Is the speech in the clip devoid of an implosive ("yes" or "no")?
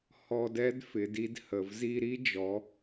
yes